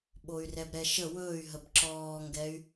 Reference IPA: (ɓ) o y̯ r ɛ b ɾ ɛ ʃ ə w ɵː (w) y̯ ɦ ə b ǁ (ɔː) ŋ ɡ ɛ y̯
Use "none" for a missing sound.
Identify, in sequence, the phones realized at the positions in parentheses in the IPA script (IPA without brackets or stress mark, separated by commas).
ɓ, none, ɔː